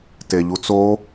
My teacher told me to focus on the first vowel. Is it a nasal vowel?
no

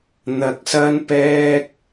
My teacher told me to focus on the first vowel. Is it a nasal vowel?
no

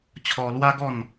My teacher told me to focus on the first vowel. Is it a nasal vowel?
no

